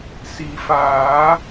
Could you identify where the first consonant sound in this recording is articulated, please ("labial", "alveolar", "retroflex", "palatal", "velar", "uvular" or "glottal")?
alveolar